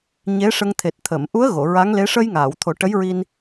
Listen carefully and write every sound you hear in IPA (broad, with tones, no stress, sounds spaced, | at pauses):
ɲ e˧˥ ʂ ə˧ ŋ t̪ʰ e˨˩ t̚ t̪ʰ ə˨˩˨ m ʔ u˧˥ ə̯ ɣ o˨˩˨ ɹ a˧˥ ŋ l e˧˥ ʂ ə˧ j ŋ aː˨˩˨ w t̪ʰ o˨˩˦ ʈ ə˧˥ j ɹ i˧ n